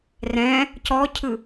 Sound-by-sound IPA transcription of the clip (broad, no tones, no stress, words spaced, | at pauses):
rɛ̃ | cɔcʰɯ